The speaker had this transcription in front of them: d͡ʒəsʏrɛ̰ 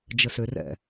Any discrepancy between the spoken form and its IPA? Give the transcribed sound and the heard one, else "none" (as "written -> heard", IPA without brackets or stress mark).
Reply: none